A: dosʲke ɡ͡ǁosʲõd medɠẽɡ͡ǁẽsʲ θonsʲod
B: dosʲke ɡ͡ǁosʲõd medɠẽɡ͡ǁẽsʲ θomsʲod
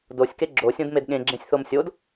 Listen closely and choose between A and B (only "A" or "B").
B